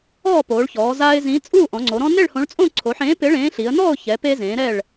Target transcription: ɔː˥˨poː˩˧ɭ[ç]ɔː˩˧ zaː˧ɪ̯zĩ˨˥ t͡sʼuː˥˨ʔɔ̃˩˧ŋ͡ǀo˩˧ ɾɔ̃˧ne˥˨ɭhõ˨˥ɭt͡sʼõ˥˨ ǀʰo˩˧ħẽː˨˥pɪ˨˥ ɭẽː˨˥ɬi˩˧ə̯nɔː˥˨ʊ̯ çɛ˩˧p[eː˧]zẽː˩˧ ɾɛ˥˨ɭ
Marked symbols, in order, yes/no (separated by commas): yes, yes